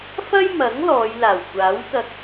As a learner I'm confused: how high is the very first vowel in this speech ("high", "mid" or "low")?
low